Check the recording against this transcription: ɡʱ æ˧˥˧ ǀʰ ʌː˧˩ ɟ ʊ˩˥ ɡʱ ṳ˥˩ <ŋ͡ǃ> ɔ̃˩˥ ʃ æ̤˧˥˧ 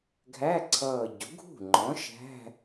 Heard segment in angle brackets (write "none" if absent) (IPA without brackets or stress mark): ŋ͡ǃ